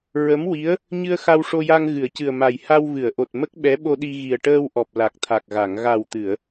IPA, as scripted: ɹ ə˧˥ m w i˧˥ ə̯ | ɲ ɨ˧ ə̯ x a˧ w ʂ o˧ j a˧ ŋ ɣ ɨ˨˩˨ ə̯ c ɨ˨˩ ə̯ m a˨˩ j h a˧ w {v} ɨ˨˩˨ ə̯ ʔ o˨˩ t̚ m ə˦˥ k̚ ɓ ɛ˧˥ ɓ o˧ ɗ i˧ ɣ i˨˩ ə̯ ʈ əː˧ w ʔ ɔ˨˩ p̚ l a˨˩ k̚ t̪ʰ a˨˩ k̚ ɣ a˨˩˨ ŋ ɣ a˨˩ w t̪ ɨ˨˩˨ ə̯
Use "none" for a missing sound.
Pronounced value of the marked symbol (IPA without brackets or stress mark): v